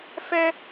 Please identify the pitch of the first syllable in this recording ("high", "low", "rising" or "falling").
high